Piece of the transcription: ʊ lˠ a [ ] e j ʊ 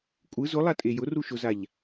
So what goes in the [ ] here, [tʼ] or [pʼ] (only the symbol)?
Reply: tʼ